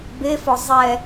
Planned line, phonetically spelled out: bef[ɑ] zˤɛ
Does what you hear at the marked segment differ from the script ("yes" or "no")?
yes